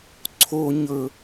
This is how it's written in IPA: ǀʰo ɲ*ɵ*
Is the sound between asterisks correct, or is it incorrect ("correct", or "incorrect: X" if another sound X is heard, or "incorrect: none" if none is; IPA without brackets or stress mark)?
correct